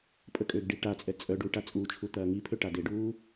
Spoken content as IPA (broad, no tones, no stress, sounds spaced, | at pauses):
pʼ ə kʼ ø ɡ ɖ i ʈ a t͡sʼ ɛ t͡sʼ œ ɖ u ʈ a t͡sʼ u t͡ʃʰ u t̪ ɐː ŋ i pʰ ø ʈ a d e ɖ uː